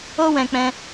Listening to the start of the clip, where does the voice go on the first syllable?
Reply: high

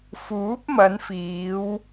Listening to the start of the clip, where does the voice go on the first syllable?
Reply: rising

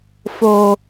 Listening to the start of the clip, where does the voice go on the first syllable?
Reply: low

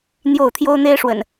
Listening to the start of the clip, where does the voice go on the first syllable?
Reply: falling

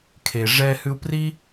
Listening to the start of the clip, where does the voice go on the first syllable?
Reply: low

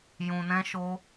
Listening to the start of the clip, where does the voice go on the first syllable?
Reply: low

